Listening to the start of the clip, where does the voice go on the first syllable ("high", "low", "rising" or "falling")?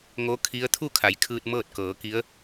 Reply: rising